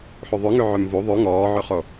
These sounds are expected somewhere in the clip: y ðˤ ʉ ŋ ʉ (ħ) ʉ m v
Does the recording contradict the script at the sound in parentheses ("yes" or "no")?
yes